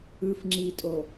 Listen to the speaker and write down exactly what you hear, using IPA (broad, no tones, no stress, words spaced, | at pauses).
ɯf ŋ͡ǁitʼo